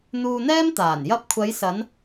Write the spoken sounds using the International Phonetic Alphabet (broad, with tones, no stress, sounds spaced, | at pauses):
n̪ uː˧ n̪ ɛː˥ m t̪ aː˨˩ n j ɐ˧ p̚ kʷʰ ɐ˨˧ j s ɐ˨˧ n